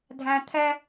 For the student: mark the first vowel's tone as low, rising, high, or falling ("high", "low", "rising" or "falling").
high